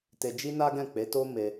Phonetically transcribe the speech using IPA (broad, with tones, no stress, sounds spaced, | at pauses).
t e˧ d͡ʒ i˦ n a˦ ɡ ɛ̃˦˨ k͡p e˨˦ t o˦ m e˧